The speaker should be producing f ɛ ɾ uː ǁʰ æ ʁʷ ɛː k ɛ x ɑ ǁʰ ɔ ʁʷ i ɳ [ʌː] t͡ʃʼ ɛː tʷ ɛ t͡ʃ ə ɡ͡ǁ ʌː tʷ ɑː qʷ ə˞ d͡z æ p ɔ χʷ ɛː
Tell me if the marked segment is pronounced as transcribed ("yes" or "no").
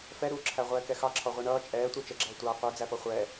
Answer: yes